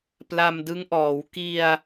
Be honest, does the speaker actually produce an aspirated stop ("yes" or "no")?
no